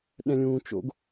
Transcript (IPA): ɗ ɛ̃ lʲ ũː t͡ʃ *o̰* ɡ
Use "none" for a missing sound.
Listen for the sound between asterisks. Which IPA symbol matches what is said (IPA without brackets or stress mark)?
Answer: o̰